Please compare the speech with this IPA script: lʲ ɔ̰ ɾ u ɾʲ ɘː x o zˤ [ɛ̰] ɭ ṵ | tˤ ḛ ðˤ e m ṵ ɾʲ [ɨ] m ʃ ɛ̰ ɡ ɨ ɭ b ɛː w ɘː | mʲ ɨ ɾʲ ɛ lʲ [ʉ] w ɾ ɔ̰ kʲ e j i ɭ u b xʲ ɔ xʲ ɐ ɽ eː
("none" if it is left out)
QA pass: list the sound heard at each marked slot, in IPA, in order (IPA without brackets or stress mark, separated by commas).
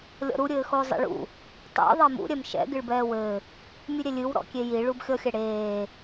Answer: ɛ̰, ɛ, ɨ